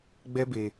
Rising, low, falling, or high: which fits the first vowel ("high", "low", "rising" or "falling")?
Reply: high